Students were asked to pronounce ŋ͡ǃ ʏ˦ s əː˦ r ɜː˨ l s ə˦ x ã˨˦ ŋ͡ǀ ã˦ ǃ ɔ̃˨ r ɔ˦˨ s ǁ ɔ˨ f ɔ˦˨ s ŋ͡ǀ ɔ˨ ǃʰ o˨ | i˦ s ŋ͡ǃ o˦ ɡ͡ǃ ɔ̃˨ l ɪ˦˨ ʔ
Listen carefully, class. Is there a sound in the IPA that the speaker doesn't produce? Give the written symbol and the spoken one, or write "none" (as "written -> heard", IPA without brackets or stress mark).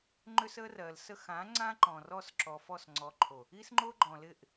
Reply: none